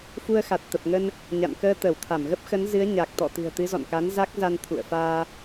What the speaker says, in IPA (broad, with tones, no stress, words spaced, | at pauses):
fu˧ə̯xa˨˩t̚t̪ə˨˩p̚ŋə˧n | ɲa̰˧˨nkəː˧ t̪ə˧˩wt̪ʰa˧˩m ɣə˦˥p̚xə˨˦nzɨ˨˦ə̯ ɲa˨˩k̚ t̪ɔ̰˧˨t̪ɨ̤˨˩ə̯ t̪ɨ˨˦zɔ̰˧˨nka˨˦n za˦˥k̚za˧n t̪ʰṵ˧˨ə̯faː˧